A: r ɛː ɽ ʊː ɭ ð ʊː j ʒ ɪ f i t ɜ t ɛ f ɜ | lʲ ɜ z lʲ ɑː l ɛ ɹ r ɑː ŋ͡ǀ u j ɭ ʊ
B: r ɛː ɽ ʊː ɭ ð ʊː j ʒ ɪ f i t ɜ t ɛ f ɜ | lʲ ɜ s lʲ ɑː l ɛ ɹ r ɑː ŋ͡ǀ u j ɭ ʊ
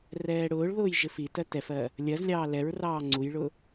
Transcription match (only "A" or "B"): A